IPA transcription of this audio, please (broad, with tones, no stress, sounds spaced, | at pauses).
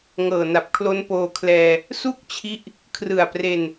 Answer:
ŋ ɤː˨˩ n a˨˩ p̚ kʰ l o˦˥ n p oː˧ kʰ l ɛː˧ | s u˥˩ k̚ t͡ɕʰ i˦˥ ʔ | kʰ r ɯ˨˩ a̯ p r e˧ n